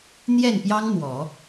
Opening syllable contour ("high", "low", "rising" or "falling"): falling